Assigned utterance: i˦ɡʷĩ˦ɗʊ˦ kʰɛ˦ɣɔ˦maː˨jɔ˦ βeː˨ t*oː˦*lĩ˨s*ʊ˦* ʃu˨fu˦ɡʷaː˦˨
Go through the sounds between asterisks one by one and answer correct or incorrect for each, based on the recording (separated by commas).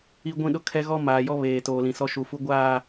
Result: incorrect, incorrect